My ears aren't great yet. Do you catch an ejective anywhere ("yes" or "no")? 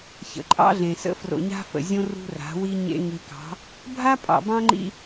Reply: yes